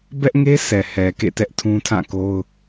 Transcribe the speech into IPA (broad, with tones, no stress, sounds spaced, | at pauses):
b ɛ˦ ʔ ŋ e˦ s ɛ˨ h ɛ˨ k ḛ˦˨ t ɛ˦ ʔ tʰ ũ˦ tʰ ã˦˨ k o˦ ʊ̯